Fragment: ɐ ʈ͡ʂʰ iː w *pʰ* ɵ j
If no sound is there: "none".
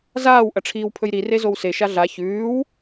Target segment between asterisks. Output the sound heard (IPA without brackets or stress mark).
pʰ